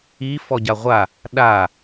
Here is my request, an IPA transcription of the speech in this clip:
i f ɔ ɟ a ʁʷ a | ɗ a

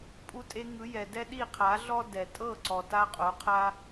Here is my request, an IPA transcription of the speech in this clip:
pʼ u˧ tʼ e˧ ŋ ɯ˨˦ j ɛ˨ d ɛ˦ ɗ i˦˨ qʰ a˨˦ ɮ ɔ˦ d ɛ˨ tʼ ɤ˦˨ ǀ ɔ˨ t a˧ qʼ o˨˦ qʰ a˦

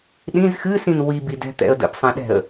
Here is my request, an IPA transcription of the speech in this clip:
ɗ ĩ z x ɨ s ĩ n w i b i d ɛ̤ t̪ ɛ̰ ə̯ d ə̰ p sˤ ɛ̃ ɗ ɛ̤ ə̯

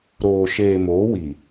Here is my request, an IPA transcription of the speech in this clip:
ɾ oː˨ ʃ eː˨ m oː˨˦ w i˨

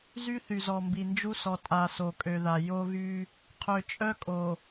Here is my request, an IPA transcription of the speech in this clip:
z y˦ θ y˨ z ɔ˨ m b i˨ n d͡ʒ u˦ s ɔ˨ tʼ a˨ s o˨ kʼ ø˨ ð a˨ j o˦ ɣ y˦ | qʰ ø˨ t͡ʃʼ œ˦ kʼ o˨

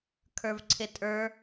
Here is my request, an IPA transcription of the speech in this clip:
kʰ ə˞ v ǀʰ ɪ tʼ ə˞

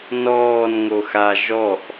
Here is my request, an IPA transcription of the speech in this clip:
n ɔː n ŋ o x a ʒ ɔ ʔ

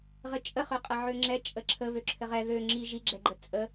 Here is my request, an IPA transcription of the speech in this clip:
ʁ ɘ t͡ʃʼ ə χ ø qʼ ɛ ʕ ø ŋ͡ǁ ɛ t͡ʃʼ ə ǁʰ ə β ø ǁʰ ɘ ʁ ɛ ð ø ŋ͡ǁ i ʒ i ɡ͡ǁ ɛ ɡ͡ǃ ə t͡sʼ ə

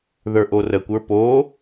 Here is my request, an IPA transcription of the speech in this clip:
ð ə˞ ʔ o r ə kʷ ə˞ p o

